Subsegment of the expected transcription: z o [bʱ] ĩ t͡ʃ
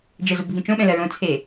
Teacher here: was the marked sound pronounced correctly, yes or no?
yes